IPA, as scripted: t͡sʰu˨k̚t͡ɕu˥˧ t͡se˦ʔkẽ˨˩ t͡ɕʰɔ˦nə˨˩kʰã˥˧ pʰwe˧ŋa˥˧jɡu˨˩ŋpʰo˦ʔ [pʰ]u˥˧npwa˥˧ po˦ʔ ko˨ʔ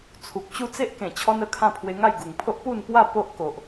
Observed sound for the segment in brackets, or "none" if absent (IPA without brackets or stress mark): p